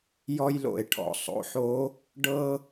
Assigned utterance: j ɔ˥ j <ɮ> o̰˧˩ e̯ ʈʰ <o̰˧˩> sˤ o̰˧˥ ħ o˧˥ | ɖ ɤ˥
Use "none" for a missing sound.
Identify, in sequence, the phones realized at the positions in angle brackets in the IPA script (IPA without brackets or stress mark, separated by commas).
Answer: l, ɔ̰˧˩